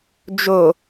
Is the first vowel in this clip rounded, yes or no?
yes